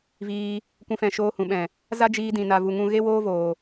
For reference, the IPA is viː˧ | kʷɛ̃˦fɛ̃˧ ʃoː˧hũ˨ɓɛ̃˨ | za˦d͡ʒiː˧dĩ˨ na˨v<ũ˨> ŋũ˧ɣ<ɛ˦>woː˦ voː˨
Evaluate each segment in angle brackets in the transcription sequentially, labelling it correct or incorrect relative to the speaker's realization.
incorrect: u˨, incorrect: e˦

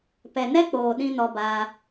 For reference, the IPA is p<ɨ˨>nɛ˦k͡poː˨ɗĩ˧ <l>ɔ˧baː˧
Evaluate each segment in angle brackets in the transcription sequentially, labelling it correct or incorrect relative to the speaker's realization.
incorrect: ɛ˨, incorrect: n

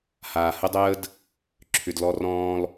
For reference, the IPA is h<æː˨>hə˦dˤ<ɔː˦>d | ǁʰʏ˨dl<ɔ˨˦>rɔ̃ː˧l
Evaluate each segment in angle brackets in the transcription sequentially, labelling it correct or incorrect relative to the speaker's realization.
incorrect: aː˨, incorrect: əː˦, incorrect: ɔ˧

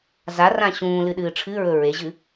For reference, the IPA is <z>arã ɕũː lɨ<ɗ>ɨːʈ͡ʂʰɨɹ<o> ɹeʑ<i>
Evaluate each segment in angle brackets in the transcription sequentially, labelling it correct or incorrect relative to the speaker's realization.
correct, correct, incorrect: ɵ, incorrect: ɨ

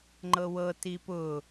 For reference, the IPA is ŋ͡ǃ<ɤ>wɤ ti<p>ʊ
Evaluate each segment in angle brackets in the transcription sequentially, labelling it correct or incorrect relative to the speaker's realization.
correct, correct

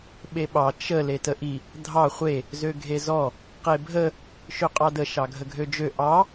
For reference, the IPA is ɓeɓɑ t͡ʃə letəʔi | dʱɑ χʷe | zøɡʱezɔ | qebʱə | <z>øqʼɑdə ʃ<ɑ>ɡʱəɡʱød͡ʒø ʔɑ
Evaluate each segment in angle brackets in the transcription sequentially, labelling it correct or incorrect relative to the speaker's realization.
incorrect: ʃ, correct

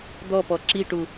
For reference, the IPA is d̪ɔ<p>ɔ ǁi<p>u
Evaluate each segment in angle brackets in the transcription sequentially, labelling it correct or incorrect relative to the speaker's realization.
correct, incorrect: ʈ

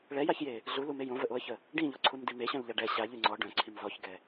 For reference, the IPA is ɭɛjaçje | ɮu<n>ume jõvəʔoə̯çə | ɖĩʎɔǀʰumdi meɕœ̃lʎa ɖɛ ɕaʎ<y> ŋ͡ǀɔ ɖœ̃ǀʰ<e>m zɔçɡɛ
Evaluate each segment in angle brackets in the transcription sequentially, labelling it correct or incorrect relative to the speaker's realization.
incorrect: l, correct, incorrect: i

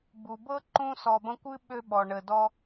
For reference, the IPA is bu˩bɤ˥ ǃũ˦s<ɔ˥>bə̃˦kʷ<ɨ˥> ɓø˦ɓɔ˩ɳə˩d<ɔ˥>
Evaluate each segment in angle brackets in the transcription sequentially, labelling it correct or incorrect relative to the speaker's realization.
incorrect: ɔ˨, correct, incorrect: ɔ˦

